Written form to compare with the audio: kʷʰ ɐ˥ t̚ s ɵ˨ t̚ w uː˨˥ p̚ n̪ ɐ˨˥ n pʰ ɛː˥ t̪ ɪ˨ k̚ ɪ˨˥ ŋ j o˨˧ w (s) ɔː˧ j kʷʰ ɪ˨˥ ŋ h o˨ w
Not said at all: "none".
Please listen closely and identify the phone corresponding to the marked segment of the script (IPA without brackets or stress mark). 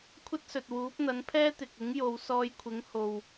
s